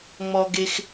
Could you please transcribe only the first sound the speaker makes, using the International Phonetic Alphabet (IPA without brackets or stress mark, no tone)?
ŋ͡m